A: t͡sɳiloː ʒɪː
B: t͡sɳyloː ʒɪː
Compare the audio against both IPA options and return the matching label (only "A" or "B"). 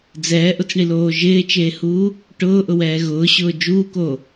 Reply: A